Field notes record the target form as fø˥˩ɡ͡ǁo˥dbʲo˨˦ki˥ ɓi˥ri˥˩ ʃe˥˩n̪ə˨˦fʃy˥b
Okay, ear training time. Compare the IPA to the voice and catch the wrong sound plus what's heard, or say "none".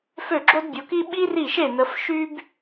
none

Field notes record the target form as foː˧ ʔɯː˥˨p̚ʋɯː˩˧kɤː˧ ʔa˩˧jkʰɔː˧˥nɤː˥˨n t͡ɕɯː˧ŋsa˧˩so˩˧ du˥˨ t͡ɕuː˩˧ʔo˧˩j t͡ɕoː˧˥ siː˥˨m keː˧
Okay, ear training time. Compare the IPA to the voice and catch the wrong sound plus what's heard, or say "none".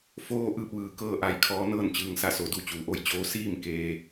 none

